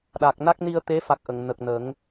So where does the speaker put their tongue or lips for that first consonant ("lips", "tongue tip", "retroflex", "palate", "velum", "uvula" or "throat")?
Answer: tongue tip